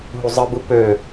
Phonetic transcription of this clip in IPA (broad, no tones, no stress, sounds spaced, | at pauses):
ɦ u zˤ ɯ b ɯ p ø